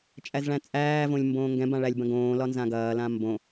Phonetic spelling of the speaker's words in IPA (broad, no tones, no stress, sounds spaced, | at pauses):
t͡ʃʼ æ z ɭ æ̃ t͡sʼ æː v õ lʲ m b õː ŋ ɡ ɛ̃ b ã ɭ æ lʲ b ɐ̃ ɡ õː l ɒ n z ã ɡ ɐː l ã m b õ